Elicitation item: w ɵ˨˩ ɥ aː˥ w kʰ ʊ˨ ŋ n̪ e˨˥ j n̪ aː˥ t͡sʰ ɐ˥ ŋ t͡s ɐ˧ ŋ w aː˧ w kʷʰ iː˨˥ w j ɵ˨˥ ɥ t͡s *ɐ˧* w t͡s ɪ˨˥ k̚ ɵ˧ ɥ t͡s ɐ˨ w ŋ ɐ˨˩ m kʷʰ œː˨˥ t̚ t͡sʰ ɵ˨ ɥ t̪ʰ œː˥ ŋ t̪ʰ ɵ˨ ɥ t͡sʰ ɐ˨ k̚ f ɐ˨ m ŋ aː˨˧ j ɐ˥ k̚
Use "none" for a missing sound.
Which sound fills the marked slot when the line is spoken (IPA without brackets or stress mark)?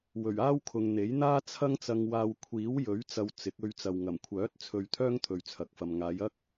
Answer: ɐ˧